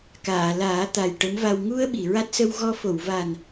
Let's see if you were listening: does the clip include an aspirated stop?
no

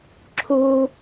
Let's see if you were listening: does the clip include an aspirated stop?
yes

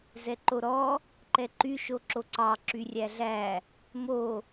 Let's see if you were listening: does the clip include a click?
yes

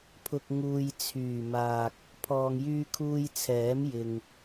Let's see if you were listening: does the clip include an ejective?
no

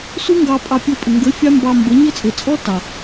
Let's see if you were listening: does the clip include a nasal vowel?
no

